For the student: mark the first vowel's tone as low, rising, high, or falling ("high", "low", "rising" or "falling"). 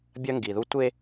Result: high